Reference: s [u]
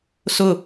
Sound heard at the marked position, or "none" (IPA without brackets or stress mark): ʊ